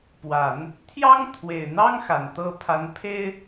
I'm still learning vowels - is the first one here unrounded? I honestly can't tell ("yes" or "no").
yes